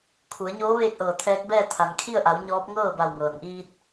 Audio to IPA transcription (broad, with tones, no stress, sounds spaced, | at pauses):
kʰ u˩˧ ə̯ ɲ oː˧˥ ʋ eː˥˨ k̚ ʔ ɤː˧˩ t̪ʰ ɛː˧˥ k̚ b ɛː˥˨ t̪ʰ a˩ n kʰ i˥˨ ə̯ ʔ a˩˧ w ɲ ɔː˧˥ p̚ ŋ ɤː˥˨ b a˧˩ w ŋ ɤː˩ n ʔ iː˧ t̚